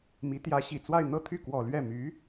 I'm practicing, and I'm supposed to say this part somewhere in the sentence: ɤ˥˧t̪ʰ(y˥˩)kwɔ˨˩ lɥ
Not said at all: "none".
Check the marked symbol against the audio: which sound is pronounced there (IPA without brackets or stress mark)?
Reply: y˥˩